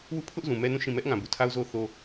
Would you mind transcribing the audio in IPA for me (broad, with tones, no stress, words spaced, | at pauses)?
wu˦˨pʰʊ˦ʔzũ˨ mɛ˦nũ˦˨ʃĩ˦˨ mɛ˦ʔŋã˨ bu˨tʰa˦ʊ̯zo˦ θo˦